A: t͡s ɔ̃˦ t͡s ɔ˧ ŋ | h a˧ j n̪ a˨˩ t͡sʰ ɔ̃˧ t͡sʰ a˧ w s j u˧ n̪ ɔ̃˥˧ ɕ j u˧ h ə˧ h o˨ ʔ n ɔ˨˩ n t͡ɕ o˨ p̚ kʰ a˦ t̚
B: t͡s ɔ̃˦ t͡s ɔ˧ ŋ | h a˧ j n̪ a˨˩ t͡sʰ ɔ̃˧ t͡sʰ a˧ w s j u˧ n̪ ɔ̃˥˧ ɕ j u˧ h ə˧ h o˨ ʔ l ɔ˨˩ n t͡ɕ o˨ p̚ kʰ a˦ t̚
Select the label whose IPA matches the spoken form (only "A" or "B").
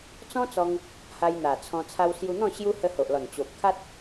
B